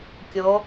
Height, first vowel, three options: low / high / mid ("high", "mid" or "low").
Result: mid